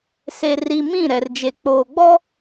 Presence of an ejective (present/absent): absent